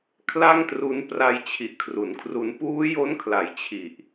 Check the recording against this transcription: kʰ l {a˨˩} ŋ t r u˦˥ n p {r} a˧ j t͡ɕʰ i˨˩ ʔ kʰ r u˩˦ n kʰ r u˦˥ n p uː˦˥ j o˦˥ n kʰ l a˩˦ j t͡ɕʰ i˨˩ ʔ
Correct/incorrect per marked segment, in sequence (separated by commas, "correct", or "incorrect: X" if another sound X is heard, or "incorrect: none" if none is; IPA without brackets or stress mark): incorrect: a˥˩, correct